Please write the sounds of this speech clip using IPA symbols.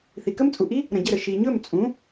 θ i˩ k ə˥ m t͡sʼ u˩ ʔ i˥ | ɾ ə̃˩ ɟ ə˥˩ ɾ ə˩ ʃ i˩ ɲ ɵ˥˩ m t͡sʼ ũ˩˥

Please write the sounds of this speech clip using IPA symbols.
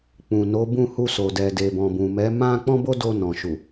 k͡p ũ˨ n o˨˦ b ũ˦˨ h u˧ s o˨ d ɛ˨ d e˨ b ɔ̃˨ b ũ˨ m ɛ˨˦ m ã˦ k͡p ɔ̃˦ b o˦ d o˧ n ɔ̃˨ ʃ u˨

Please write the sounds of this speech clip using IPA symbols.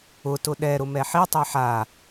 ʊ t ʊ ɗ ɛ ɾ ʊ m ɛ ħ i tˤ e ħ a

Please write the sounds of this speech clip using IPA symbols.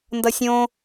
n d ʌ sʲ õ

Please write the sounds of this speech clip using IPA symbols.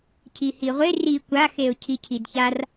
cʰ i h i ʁʷ e r i kʷ a x e ʊ̯ cʰ i cʰ i d ç a r

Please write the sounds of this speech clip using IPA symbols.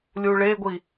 lʲ u ɭ e ɡʷ i

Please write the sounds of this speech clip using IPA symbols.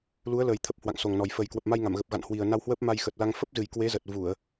l u˨˦ ə̯ l əː˨˩ j t̪ʰ ə˨˩ p̚ h w a̰˧˨ ŋ s o˨˩ ŋ n ɔ˨˩ j f ə˨˩ j k w ə˨˩ p̚ m a˧ j ŋ a˧˩ m ɣ ə˨˩ p̚ ɣ a̰˧˨ n h w i˨˩ ə̯ n a˧ w h w əː˦˥ p̚ m a˧ j x ə˨˩ t̚ l a˧ ŋ f ə˦˥ p̚ z ɨ˨˩ j k w e˨˦ z ə˨˩ t̚ v u˧˩˨ ə̯

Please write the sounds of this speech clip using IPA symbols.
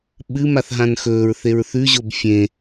ɓ ɨ m a θ ɦ ã n x ɵː ɹ θ e ɹ θ ʉ ʑ o b fʲ ẽ

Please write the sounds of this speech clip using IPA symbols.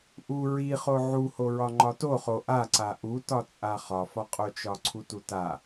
ʔ u ɹ i χ o ʕ u h o ɹ ɒ ŋ͡ǃ ɒ t o χ o ʔ a ǀ a ʔ u t ɒ t͡sʼ a χ ɒ f ɒ qʼ o t͡ʃ ɒ ǀʰ u t u t a

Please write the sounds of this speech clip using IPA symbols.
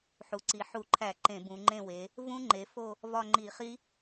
ħ u˩˧ ǀ i˩˧ ħ u˧˩˧ ǃʰ æ˧˩˧ ǃ ẽ˧˩˧ b ũ˩˧ ŋ͡ǃ ẽ˦˨ w e˩˧ | v ũ˦˥ ŋ͡ǃ e˩˧ f o˦˨ | v ɒ˦˨ ŋ͡ǃ i˧˩˧ χ i˦˥

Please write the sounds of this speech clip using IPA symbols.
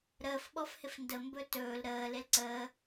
ɾ əː f ɓ ɔ f h ɪ f n d ə m b ɵ t ɵː l ɾ əː l e l ǀ əː

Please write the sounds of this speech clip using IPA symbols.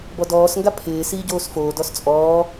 b ɔ d ɔː s ŋ ɡ a pʰ ɪː s iː ɟ oː s f oː d ɔ s t͡sʼ ɔː

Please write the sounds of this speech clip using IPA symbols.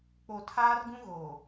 k͡p o˨ tʰ aː˦ r ɡ ũ˦ ɣ oː˨

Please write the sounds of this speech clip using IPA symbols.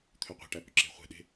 t̪ʰ ø qʷ ɛ̤ ʈ æ p ʏ ǁ e̤ χʷ e̤ ɗ e̤

